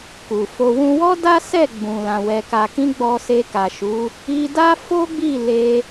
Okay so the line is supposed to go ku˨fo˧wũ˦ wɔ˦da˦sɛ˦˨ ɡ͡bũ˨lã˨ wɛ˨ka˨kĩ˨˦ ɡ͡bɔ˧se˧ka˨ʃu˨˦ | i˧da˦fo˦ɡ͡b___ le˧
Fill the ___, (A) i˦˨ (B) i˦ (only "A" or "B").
A